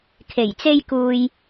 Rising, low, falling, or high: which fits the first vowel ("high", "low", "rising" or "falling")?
low